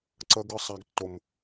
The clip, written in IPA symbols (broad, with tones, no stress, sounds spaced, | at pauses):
ǀ ə˦ ɡ ɯ˦ sˤ a˦ ɡ tː o˦ m